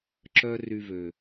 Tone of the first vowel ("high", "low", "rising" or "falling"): high